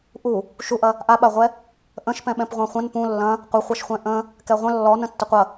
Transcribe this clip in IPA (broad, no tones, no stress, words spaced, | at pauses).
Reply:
ʔu | ʃuʔɐ | ʔaɓaʁʷɛ | ʔə̃ʃpɛ̃ɓɛ̃p ʁʷãχʷə̃n pũ lːɐ̃ | qʷəχʷaʃχʷɛ̃ ʔə̃ | kɛʁʷə̃ lːɔnə̃ tːɐqʷɐ